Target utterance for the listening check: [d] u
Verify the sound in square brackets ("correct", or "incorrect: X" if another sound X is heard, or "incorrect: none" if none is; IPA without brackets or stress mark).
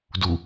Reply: correct